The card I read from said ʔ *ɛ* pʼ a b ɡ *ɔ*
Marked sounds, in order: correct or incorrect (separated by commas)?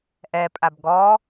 correct, correct